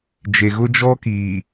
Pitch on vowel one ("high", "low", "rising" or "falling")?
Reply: low